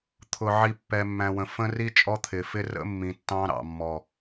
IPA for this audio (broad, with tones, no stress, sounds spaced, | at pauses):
t̪ʰ ʊ˨ ʕ i˨ pː ɛ˨ mː æ̃˨ w ə̃˨ f ə̃˦ r i˦ t͡ʃʼ ɔ˦ t̪ʰ ɪ˨ f ɪ˦ r ə̰˦ mː ĩ˨ tː ɑ̃˦ ɾ ɑ̰˨ mː ɔ˨